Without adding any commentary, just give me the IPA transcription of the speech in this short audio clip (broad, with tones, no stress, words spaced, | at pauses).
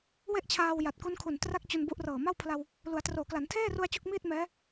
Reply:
we˥˩ʔt͡ɕʰaː˧w ja˨˩t̚ku˦˥nkʰu˨˩n tra˥˩k̚ t͡ɕu˧nbu˦˥ʔrɤː˨˩ ma˥˩wpʰla˧w | lu˩˦a̯troː˩˦kla˩˦n tʰeː˥˩ru˧a̯ t͡ɕu˥˩k̚miː˥˩t̚ mɛː˦˥